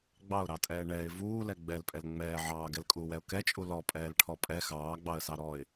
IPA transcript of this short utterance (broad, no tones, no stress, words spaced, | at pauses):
ɡ͡bɑʊ̯ɾɑtʼɛː ɳɛɪ̯ vuːlɛ ɡ͡bɛlpʼɛl ŋ͡mɛː ʕɑːɡɛlkʼuːwɛʊ̯ kɛt͡ʃʼu lɔpʼɛːlʈʰɔ pʼɛ xɑːɡ͡bɑə̯sɑ ɾɔɪ̯